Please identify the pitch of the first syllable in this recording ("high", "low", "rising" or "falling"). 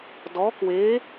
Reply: rising